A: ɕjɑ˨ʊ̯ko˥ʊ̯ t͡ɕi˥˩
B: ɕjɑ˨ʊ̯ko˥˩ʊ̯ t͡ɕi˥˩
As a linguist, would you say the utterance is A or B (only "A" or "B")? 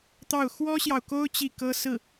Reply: A